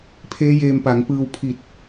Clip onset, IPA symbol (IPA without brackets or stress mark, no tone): pʰ